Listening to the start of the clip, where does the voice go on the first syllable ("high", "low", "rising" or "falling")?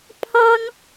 high